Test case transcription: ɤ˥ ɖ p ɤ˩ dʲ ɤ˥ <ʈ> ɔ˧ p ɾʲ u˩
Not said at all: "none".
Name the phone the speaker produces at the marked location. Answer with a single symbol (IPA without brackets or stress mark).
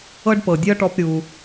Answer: ʈ